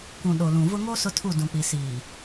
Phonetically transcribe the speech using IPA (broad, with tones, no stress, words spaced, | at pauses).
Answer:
kʷũ˨ ɗo˨lũ˨vʊ˦ ŋo˦ sʊ˦tʰu˦˨ dũ˨k͡pi˨ siː˨